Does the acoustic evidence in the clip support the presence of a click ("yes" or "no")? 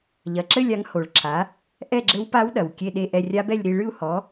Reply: yes